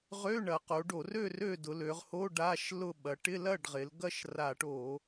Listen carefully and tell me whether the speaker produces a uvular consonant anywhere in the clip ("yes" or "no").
yes